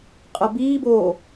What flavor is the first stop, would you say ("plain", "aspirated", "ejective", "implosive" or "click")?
ejective